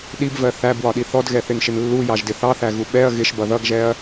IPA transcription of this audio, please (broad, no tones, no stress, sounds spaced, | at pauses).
ɗ i b v ɜ θ æ b w ɒ ɗ i θ ɔ d ɣ ɛ θ ɪ n ʃ ɪ n lː u j ɑ ʒ d ɪ θ ɑ θ æ ɣ u ɓ ɛ ɐ̯ ɣ ɪ ʃ b ʌ ð ʌ ɡ ʒ ɛ ɐ̯